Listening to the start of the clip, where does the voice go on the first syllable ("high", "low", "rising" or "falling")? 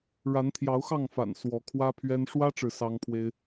rising